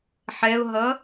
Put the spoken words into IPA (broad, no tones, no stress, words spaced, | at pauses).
ħɛʊ̯ɦʌ